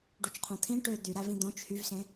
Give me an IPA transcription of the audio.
ɖut͡ʃqʰõt̪ʰĩ ʈø d̪yɾævĩ d̪õt͡ʃ hyvsẽ

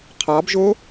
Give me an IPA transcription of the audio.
qʰɑbʒo

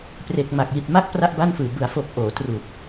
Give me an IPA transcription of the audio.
pre˨˩k̚ ma˨˩k̚ji˨˩t̚ma˦˥k̚ pra˥˩ʔba˥˩nfɯː˨˩ bɯ˩˦a̯foː˨˩k̚ ʔoː˩˦tru˨˩k̚

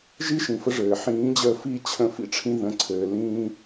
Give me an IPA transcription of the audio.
ʒi˦ʃĩ˨fə˧ ʐɘː˨ ħĩː˨˦d͡ʑəː˧fi˦˨ t͡ɕʰə̃˧fḭ˦ʈ͡ʂʰĩ˧ ðə̃˨ǀʰɘː˨ lĩː˧

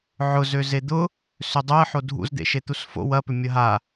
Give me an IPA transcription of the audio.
ʕʊ zøzed̪ʊ | sʏdˤoə̯ħo dʱṵzd̪ḛ ʃet̪usfo̰ wɐpʏ mʲɐɦa

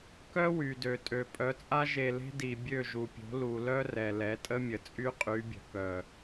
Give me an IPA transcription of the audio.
kœ˦wy˨dø˨tʼø˨ pʼœ˨˦t͡sʼa˦ ʒe˧le̤˦ di˨ bʲø˦˨ʒu˨pʲo̤˨˦ lu˨lœ˦ rɛ˨lɛ˨˦tʼə˦mʲə˨ t͡sʼy˦qʼy˨˦bʲə̤˨kœ˨

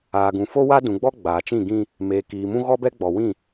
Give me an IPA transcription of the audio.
aː˨ɡũ˨ fo˦wa˦dũ˨ɡ͡bɔ˦ ɡ͡baː˨t͡ʃĩ˦˨ɡĩ˦ | meː˨kiː˨mũ˦ ɣɔ˦bɛ˦ɡ͡bɔ˨wĩ˦˨

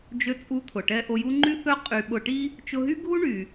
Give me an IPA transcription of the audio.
d͡ʒø˧t͡sʼu˧t̪ʰʊ˩ʈɛ˧ ʔo˧ju˥ ŋ͡ǃy˥θœ˥ qʼy˧ ɓʊ˧ʈi˥ | t͡ʃʊ˧ɦy˥ɡʱu˥ ɳy˩

